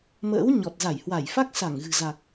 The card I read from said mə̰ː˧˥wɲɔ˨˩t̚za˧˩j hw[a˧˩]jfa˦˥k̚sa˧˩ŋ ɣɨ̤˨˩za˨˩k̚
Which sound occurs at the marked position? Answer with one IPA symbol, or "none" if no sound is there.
a˧˩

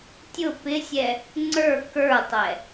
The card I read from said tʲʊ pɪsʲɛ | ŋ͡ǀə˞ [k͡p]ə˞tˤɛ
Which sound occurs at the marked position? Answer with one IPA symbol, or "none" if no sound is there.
k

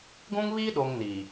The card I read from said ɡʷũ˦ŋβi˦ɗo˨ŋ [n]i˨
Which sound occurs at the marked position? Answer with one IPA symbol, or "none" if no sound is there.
n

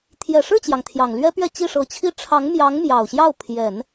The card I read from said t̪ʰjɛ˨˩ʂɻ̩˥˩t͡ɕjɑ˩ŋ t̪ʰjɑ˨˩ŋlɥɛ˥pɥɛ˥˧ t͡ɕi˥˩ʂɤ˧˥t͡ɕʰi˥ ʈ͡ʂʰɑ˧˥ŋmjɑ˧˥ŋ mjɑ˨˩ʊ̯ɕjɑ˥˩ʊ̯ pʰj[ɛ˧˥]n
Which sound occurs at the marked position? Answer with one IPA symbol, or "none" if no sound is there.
ɛ˨˩˦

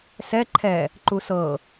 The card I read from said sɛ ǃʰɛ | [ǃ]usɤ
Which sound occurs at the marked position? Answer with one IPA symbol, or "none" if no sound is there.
ǃ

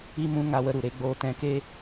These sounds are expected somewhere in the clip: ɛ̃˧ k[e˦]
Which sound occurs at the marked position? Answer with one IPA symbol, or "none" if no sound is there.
e˦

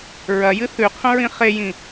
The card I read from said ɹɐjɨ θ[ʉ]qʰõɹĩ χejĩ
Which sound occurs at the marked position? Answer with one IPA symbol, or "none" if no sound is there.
ʉ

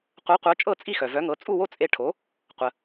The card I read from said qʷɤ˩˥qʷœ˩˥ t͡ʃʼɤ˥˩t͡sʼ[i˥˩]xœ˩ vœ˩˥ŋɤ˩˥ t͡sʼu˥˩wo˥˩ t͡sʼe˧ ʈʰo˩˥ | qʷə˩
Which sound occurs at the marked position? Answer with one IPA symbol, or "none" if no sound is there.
i˥˩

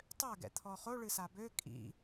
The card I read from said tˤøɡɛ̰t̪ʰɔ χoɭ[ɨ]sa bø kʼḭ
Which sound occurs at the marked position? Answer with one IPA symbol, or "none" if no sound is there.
ɨ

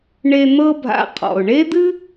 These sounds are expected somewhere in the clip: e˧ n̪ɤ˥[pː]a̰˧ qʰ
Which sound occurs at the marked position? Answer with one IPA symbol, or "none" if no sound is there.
bʱ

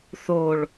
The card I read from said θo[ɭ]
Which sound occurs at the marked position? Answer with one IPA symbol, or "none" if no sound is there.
ɭ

